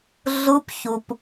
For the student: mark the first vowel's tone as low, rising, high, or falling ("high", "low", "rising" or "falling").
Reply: rising